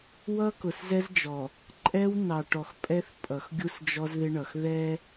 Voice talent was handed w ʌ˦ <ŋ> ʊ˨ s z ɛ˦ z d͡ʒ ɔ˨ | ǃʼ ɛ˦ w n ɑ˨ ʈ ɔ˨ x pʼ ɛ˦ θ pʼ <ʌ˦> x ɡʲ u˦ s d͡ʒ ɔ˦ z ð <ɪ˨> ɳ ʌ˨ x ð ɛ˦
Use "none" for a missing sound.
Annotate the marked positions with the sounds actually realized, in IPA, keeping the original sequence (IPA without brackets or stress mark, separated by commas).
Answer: k, ʌ˨, ɪ˦